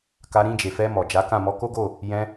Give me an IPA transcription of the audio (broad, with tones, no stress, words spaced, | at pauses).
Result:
ka˧ɾĩ˧d͡ʒe˨fɛ˧ mɔ˨d͡ʒa˨˦kã˦˨ mɔ˧ko˦ɡo˦˨ | jɛ̃˧